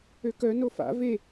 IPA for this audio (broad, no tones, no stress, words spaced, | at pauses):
økœ nofa̰ ve